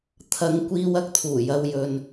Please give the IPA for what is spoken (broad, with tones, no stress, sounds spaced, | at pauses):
t̪ʰ ɐ˨˧ ŋ kʷ iː˧ w ɐ˧ k̚ t̪ʰ uː˨˩ j ɐ˨ w j ɵ˨ n